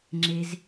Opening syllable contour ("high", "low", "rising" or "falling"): high